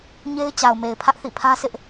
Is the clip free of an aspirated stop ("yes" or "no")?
no